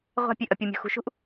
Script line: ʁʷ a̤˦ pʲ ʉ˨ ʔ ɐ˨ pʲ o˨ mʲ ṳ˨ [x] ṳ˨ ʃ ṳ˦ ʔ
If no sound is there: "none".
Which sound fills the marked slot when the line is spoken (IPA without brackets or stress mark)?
x